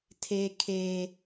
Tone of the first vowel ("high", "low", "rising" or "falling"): low